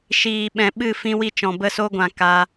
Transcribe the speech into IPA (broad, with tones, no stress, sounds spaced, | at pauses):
ʃ iː˨ ɓ ɛ̃˨ ɓ ɨ˦˨ f ĩ˧ w i˧ t͡ʃ ɔ̃˨ b ə˧ s o˧ ɡʷ ã˨ k a˧